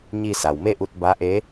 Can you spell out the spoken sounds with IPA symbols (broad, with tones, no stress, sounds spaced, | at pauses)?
ɲ i˧ s a˩ w m e˥˨ ʔ u˧ t̚ b a˧˥ ʔ e˧˥